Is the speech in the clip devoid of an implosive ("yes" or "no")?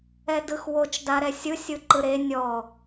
yes